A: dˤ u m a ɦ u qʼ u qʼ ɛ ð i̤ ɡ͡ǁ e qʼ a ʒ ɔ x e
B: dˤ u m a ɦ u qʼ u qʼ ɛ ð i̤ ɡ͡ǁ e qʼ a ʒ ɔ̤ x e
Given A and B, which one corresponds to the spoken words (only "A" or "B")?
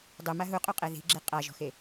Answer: B